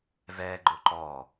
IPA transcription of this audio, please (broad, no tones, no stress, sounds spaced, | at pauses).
v ɛ ɡ͡ǃ ʊ ǃ ɔ